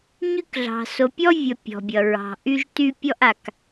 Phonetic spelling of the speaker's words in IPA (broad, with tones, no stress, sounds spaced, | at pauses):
ɲ y˦ k ɮ ɑ̤˨ s o˨ pʲ ɔ˦ vʲ ʌ˨ pʲ ɔ̤˨ bʲ ʌ˨ ɹ ɑ̤˨ ʔ y˦ ʒ t y˦ pʲ ɔ˦ ʔ a˨ k